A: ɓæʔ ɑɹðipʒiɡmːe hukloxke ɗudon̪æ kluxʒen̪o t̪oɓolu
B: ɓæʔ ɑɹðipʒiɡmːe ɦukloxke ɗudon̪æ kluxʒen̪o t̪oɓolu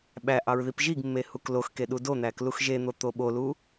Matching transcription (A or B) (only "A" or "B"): A